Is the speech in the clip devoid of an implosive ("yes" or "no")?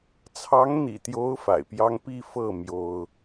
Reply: yes